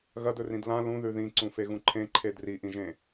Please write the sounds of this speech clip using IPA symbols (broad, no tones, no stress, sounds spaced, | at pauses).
ɣ ɐ d ɵ r ĩ d l ã l ũ ð ʉ ð ĩ ǀ ũ f e ɣ ũ ǃʰ ẽ ǃʰ e d r i ʔ ĩ ʒ ẽ